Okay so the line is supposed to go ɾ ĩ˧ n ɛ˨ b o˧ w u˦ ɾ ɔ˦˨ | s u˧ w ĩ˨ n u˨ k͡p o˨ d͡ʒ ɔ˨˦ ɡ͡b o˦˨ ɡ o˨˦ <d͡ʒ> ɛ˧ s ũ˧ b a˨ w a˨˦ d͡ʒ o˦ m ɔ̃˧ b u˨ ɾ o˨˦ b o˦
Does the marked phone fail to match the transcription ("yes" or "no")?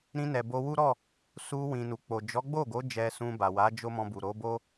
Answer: no